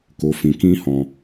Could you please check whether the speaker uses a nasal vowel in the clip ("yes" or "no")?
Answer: yes